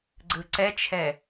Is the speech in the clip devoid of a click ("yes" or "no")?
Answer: no